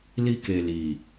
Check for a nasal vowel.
absent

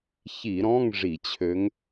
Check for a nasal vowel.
present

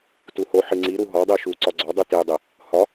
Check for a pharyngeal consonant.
present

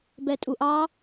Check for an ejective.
present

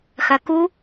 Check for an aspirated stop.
absent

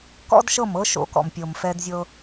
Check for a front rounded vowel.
absent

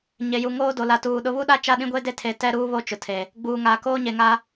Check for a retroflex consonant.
absent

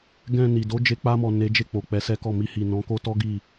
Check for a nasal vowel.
present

